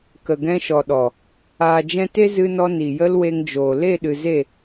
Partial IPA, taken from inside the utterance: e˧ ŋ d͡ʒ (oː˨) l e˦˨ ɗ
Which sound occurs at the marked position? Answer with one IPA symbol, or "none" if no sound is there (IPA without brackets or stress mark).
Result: oː˨